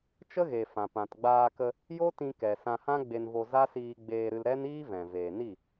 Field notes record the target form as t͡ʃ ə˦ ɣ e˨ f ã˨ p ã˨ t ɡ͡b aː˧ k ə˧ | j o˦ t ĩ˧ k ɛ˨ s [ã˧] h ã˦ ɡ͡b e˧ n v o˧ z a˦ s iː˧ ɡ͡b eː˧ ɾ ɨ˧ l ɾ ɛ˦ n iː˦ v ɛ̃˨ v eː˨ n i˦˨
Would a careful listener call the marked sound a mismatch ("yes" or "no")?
no